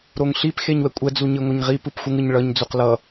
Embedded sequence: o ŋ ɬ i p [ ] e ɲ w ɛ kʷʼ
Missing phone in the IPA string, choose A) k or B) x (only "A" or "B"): B